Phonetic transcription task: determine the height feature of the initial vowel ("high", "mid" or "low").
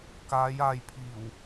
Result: low